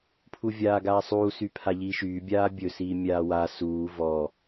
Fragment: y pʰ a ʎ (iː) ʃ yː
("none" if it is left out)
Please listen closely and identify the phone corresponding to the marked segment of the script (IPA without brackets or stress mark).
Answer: iː